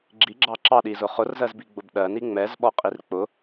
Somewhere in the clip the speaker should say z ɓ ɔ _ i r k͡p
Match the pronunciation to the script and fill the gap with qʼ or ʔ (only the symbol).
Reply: qʼ